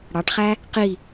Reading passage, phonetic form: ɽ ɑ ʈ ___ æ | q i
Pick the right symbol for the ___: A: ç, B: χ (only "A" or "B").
B